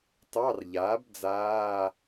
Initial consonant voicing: voiceless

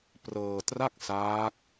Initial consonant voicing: voiceless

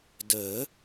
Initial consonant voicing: voiced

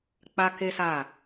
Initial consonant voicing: voiceless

